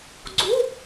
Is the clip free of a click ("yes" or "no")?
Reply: no